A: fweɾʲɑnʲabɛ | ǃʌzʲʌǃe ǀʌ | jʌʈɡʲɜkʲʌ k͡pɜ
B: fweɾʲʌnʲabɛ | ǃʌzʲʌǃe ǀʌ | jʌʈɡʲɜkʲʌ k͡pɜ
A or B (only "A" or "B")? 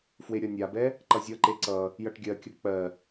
B